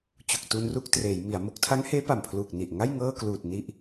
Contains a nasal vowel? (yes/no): no